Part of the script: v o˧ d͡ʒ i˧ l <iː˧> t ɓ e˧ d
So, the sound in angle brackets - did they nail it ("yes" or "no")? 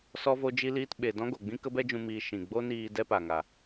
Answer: yes